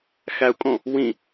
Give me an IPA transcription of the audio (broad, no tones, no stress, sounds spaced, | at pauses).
x æ u̯ kʼ õ | w ĩ